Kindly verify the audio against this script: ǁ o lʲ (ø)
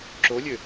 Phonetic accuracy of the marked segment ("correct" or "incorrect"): correct